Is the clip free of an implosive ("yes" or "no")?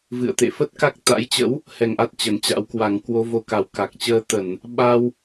no